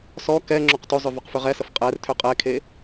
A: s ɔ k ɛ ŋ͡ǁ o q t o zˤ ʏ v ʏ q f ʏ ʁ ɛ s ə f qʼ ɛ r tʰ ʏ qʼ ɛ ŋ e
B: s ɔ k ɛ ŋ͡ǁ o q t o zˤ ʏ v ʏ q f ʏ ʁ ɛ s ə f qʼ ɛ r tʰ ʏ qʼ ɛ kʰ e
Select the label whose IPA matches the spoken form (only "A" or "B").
B